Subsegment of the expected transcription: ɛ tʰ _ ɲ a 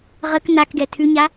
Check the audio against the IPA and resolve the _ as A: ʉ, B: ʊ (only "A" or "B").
A